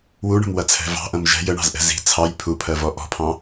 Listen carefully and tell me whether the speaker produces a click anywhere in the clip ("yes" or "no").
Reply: no